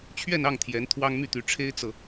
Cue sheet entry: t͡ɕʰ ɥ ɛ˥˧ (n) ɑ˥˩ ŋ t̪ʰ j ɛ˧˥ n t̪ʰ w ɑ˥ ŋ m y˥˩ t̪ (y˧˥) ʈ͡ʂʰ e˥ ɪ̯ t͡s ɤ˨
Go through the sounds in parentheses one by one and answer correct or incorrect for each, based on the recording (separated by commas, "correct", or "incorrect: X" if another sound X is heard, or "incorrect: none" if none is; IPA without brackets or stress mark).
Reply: correct, correct